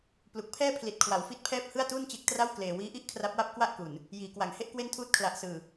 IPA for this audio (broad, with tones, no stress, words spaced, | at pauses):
plu˨˩k̚pʰɛː˥˩ pʰli˨˩t̚kʰwa˩˦w fi˥˩t̚pʰɛː˥˩p̚ hɯ˥˩a̯tuː˥˩nt͡ɕe˦˥k̚tra˥˩w kleː˨˩wiː˦˥ʔi˦˥ʔ kʰra˦˥p̚wa˥˩p̚ kwa˥˩ʔku˨˩n | jiː˩˦kwa˩˦ŋ he˥˩ʔkwe˥˩ntʰuː˥˩t̚ kʰla˨˩ʔsɯː˨˩